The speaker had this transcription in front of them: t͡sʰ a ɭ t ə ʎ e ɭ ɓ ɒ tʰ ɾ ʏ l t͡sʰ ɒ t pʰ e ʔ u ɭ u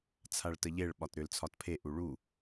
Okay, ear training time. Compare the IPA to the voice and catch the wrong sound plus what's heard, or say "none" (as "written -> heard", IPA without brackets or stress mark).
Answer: tʰ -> t